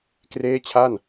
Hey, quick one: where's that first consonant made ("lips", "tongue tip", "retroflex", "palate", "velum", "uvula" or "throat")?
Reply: velum